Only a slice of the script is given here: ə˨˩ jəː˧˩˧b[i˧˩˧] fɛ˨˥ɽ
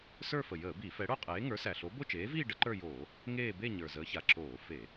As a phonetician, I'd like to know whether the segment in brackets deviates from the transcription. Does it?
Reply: no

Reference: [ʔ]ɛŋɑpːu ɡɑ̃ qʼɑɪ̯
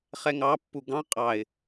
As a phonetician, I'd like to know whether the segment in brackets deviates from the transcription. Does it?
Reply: yes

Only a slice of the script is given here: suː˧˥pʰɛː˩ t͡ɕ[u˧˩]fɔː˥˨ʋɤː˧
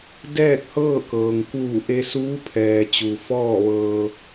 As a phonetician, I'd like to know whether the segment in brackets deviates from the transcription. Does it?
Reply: yes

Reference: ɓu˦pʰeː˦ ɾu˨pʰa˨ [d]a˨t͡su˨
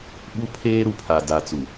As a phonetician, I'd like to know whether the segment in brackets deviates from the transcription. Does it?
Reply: no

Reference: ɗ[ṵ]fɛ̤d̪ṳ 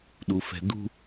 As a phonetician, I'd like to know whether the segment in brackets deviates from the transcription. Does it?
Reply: yes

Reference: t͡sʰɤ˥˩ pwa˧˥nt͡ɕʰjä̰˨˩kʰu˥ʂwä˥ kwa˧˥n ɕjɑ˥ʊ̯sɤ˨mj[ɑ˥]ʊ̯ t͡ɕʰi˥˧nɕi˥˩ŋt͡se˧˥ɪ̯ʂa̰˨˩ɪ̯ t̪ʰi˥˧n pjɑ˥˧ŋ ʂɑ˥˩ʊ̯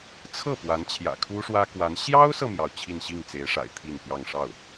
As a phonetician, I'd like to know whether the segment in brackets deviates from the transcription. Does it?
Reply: yes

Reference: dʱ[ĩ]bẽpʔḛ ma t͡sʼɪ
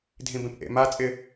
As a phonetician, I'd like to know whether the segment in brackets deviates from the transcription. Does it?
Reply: no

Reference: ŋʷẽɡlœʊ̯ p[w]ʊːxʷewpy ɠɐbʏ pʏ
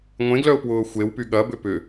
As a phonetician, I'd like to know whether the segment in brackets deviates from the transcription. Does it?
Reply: no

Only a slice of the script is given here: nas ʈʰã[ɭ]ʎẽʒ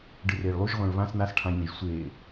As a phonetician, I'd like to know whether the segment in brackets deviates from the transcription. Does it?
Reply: yes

